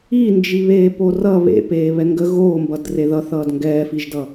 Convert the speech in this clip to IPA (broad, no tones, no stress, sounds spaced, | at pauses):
i n d͡ʒ i β eː p o r ʌ β ḛ p eː β ɛ ŋ ɡ ə ɣ oː m b ʌ d r e ð ʌ θ ʌː d ŋ ɡ ɛː f i ʒ d ʌ